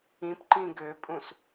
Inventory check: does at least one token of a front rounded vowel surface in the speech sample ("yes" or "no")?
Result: yes